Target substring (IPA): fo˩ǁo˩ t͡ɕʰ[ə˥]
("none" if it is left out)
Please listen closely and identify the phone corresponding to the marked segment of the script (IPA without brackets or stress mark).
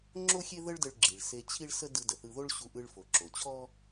ɔ˥